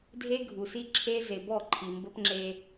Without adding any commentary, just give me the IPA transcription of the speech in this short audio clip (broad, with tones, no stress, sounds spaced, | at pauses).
dʱ e˦ ɡʱ u˨ s i˦ ǁʰ e˦ z e˨ b ɔ˦˨ ǃʰ i˨ m b ə˦ p ŋ͡ǁ e˦